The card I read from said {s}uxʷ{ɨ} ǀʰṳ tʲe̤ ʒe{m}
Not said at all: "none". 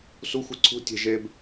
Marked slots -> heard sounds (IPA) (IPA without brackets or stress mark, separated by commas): s, i, b